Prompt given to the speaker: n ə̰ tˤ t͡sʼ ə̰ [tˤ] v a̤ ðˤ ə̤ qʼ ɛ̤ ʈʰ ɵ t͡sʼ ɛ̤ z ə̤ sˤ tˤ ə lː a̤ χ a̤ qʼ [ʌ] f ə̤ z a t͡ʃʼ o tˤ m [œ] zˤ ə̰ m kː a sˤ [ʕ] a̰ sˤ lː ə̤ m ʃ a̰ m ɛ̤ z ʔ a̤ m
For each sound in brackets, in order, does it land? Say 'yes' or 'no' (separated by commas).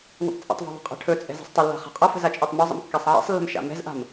yes, yes, no, yes